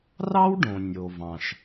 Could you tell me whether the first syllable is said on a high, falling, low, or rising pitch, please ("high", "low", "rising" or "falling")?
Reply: high